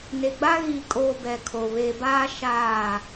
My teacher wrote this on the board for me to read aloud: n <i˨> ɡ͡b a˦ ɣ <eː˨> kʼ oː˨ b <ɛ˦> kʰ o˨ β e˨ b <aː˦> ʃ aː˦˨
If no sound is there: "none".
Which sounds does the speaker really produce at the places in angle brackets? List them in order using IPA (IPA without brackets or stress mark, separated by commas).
e˨, iː˨, ɛ˨, aː˦